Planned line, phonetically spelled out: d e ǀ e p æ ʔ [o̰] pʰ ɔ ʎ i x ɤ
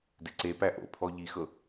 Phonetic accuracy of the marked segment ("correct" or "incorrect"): correct